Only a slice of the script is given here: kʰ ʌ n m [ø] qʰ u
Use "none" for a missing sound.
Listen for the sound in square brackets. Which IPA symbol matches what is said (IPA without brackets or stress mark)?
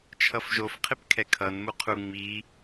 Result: u